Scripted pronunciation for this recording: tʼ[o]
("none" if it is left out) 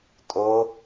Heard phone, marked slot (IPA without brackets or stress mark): o